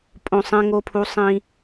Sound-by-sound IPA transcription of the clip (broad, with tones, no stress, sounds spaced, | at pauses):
pʼ õ˨ sˤ ẽ˦ ŋ o˦ pʰ u˦ sˤ ĩ˦